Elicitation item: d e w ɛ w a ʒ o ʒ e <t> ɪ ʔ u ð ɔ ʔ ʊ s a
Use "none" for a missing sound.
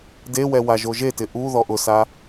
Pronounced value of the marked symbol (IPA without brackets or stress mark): t